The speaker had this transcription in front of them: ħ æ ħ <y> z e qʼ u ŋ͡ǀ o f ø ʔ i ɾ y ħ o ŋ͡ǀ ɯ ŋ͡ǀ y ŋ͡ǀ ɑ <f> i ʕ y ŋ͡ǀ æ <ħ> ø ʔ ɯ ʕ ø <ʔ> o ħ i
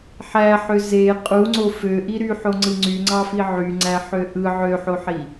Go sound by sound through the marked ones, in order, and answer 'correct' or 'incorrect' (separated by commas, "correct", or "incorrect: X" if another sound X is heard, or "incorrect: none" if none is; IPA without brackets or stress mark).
incorrect: ø, correct, correct, incorrect: ħ